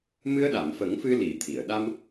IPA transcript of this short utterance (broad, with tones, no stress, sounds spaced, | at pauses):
m ɨ˧ ə̯ ɗ a˨˩˨ m f ə˨˩˦ ŋ f ɨ˧ l i˨˩˦ t̪ʰ i˨˩˨ ə̯ ɗ a˧ m